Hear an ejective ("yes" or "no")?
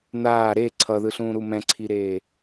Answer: no